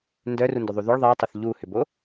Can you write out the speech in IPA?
ndœrundʏðˤu ðʏɭ ðˤitˤʊθ ʎuhʏbo

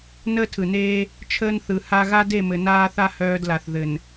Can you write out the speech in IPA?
nəː˦tʰɯ˨neː˦ | t͡ʃʰəː˦nθɯ˨ ha˦ ɣa˦de˦˨mɘ˨ naː˦θa˦ hœː˦dla˨θ ðɘ˨n

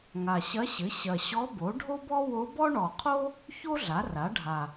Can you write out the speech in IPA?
ŋa˨˩ɕɐ˧˥ɕɘ˩˥ ɕɐ˨˩ɕɔ˧˥bo˩˥ ɖʱo˥bɔ˥ wo˧˥bɔ˥ ɳɔ˨˩qʰo˥ | ço˥ ɮa˩˥ra˩˥ɖʱa˨˩

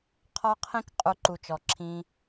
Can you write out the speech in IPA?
qʰɔ˦qʰĩ˦k qʼu˦ǃu˧t͡ʃɔ˧ǁʰĩ˦

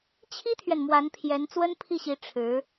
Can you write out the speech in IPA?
t͡ɕʰi˥t̪ʰɥɛ˨n mwa˧˥npʰjɛ˧˥n t͡swə˥npʰi˥˩ɕi˧˥ ʈ͡ʂʰɻ̩˧˥

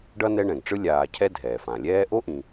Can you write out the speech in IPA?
ɖʌ˥nɛ˦ɳɛ̃˩ɡʈ͡ʂɯ˥ lʲaː˨cʰɛ˦ dʱɛː˩fã˩lʲɛː˥ ʔo˥ʔĩ˩

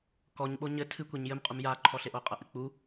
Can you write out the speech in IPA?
kɔɲɓo ɲɘ tʰɨkʷeɲ jɘmqʼum jaǃʰɔɬeʔo qʼɐʔɨk͡pu

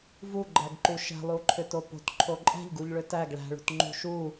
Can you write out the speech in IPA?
vuɡ͡ǃæɡǃu ʃɛ̤lˠuǃʰʏto po̤tǃʰo ǃʼɛ̤ʎɡuʎɭʏ tæɡ ɭæ̤ɭṳtŋ͡ǃṳ ʃu

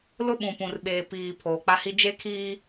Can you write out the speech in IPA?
lʊ˦ɓũ˨pũ˨rɓeː˨ piː˨ pʰoː˨k͡pa˦hi˦ d͡ʒe˦kʰiː˦

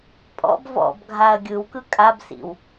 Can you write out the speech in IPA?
pʼɔ̰b vɔ̰bɡʱaɐ̯ ɡʲɯwkɯ kʼabsḭw

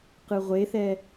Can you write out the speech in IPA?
qɯʁʷeθɛ

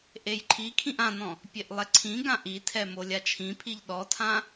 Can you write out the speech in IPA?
ʔejǃʰikʰĩʔ ãnɔ̃ | pʲeʔlˠɛǀʰĩɡã ʔitʰɛ molʲat͡ʃʰĩpʰiʎ ɗɔtʰã

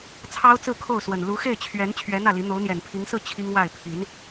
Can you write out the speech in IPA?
t͡sʰɑ˥ʊ̯t͡sɹ̩˥˧ kʰo˥˩ʊ̯swə˨˩n lu˧˥xe˥˩ɪ̯t͡ɕʰɥɛ˧˥n t͡ɕʰɥɛ˧˥ n̪ä˥˩li˧˥ n̪o˧˥ʊ̯n̪jɛ˨˩n pʰi˧˥ŋsɹ̩˥˩ t͡ɕʰi˥ŋwa˥˩ɪ̯ pʰi˧˥n

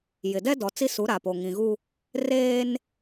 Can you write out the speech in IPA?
jɪ˨dɛ˦dɔ˨ t͡si˦su˨˦ ɾa˨po˨ ŋĩ˨ɣu˦ | reː˦n

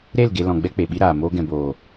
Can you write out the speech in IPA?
ɾe˦˨l ɡe˧lɔ̃˨ ɡ͡bɛ˦k͡pe˨ɓi˦ɾaː˨ moː˧ɡɛ̃˨boː˨

